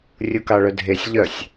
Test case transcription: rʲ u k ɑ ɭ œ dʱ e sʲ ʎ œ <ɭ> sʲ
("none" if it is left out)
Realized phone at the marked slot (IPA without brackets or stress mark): none